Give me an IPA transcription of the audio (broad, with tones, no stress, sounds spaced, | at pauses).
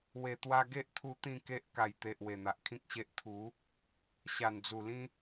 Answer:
w e˨˩ t̪ w a˧ ɡ e˦ ʔ t̪ʰ u˧ t̪ ĩ˥˧ k e˦ ʔ k a˨˩ j t̪ e˨ ʔ w e˨˩ n̪ a˨ ʔ kʰ ĩ˦ k̚ ɕ e˦ ʔ t̪ʰ u˨˦ | ɕ a˨˩ n d͡z u˨˩ l ĩ˦